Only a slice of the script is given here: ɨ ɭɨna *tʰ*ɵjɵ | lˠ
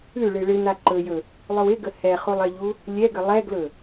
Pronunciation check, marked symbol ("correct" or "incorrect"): incorrect